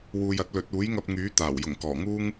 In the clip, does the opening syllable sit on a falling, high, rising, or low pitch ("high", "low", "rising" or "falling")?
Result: low